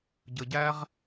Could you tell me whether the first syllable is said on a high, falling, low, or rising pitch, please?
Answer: low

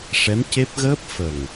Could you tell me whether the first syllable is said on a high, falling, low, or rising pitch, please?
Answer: rising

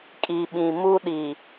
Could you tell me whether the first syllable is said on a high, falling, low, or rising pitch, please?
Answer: low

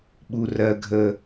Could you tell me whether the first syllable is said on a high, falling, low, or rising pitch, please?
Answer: low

